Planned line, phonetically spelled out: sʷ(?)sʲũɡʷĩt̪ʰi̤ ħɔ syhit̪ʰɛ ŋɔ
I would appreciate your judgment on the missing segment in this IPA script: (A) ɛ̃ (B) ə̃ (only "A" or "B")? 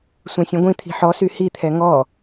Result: A